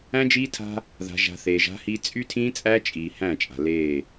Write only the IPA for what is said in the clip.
æ̃˦ d͡ʒ iː˦ tʰ a̤˦ | ð a̤˨ ʒ a̤˨ θ eː˨ ʒ a̤˦ h i˦ t͡sʼ y˦ tʰ ĩː˦ t͡sʼ æː˦ t͡ʃʼ iː˨ h æ̃˦˨ t͡ʃʼ a̤˨ l eː˦˨

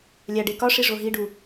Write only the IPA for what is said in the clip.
lʲ æ ɖ e k ɒ ʂ i ʐ o ɦ i ɖ u

